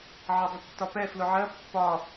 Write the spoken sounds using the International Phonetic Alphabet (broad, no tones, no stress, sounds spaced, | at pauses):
ʕ ʌ dˤ ə tː ɒ p ɛ f l ʊ ʕ ɜ pː ɒ